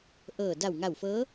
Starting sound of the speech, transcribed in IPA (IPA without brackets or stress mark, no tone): ʔ